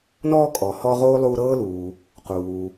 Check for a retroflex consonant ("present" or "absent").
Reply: absent